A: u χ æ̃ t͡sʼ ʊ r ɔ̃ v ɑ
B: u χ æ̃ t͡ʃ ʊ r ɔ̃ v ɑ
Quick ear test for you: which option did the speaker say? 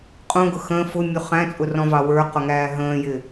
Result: A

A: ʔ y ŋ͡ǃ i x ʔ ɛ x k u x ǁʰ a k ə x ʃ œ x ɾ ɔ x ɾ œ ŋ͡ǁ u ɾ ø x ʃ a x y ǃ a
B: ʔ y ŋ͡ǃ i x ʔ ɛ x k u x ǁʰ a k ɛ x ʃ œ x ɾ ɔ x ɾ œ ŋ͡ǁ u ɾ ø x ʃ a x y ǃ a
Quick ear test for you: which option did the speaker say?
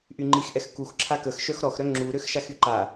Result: A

